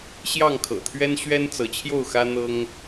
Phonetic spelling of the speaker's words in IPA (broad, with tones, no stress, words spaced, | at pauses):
ɕjɑ˥˨ŋkʰɤ̰˨˩ t̪ʰɥɛ˦nɕɥɛ˦nt͡sɤ˨˦t͡ɕʰjo˥˨ʊ̯ xä˦n̪ɤ˦ŋ